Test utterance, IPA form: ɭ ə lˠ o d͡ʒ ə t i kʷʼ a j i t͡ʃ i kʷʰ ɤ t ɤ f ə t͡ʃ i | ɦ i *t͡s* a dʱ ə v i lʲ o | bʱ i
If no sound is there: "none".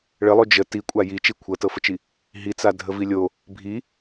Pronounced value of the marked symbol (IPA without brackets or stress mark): t͡s